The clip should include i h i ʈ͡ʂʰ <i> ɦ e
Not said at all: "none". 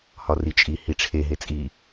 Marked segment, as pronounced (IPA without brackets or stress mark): e